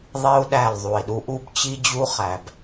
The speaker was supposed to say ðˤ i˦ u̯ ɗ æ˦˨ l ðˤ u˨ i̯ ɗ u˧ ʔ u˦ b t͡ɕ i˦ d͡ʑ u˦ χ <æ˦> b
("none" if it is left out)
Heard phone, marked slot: æ˨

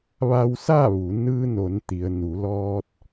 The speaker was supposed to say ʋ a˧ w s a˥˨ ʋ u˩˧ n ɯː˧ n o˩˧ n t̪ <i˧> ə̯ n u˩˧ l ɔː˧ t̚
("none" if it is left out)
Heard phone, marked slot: i˩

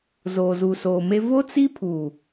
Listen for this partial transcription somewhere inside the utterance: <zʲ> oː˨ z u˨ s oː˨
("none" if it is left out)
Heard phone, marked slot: z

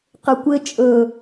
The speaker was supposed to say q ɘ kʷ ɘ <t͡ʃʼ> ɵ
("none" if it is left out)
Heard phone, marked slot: t͡ʃʼ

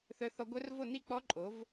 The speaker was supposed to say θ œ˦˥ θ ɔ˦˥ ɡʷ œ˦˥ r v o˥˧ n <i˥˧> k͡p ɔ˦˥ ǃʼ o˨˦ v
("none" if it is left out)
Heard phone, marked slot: i˥˧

